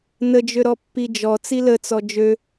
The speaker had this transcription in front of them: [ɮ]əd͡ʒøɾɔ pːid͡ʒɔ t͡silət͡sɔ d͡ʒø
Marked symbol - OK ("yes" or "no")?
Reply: no